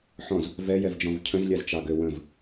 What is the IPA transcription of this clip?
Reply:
ħɔ̃z | vɛjɛvd͡ʒɔ̃v cʰə̃zlʲazt͡ʃɑɡø wə̃v

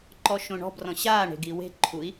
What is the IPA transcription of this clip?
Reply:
ǃɔʃõɳɔ̤brɔ̃ ɕaːɳe̤ ɡiwe̤ ǃʰui̯

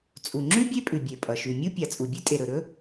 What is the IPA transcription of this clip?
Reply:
t͡sʼu˩ŋ͡ǁʉ˥ bʲe˥pʼʉ˩bʲe˩ pʼʌ˩ ʃʉ˩ mʲu˥pʲa˩ t͡sʼu˩bʲʉ˥tʼe˩ɾɵ˩ ɾɵ˥

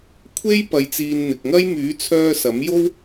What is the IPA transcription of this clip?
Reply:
kʷʰe˥j pɐ˧jt͡siː˧n n̪ɪ˨k̚ŋɐ˥j myː˨˥t͡sʰœː˧ sɐ˨˥mjo˥w

